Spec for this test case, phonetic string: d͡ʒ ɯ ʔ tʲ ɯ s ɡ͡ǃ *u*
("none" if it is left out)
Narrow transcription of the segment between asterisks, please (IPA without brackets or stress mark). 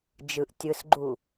u